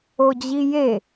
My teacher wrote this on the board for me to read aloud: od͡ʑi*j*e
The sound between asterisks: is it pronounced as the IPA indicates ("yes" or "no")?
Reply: yes